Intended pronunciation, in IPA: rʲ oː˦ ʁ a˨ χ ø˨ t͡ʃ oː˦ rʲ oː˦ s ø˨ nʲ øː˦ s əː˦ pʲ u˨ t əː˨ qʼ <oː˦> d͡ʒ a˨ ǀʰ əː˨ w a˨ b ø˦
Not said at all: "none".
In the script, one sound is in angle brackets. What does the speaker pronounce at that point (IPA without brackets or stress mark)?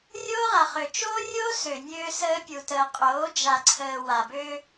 oː˨˦